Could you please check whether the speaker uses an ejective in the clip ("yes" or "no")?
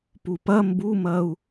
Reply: no